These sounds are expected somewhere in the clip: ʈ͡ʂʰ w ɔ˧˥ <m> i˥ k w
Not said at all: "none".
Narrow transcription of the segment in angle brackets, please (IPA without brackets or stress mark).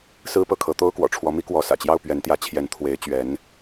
m